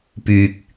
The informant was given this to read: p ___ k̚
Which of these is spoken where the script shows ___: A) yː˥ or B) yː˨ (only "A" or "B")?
B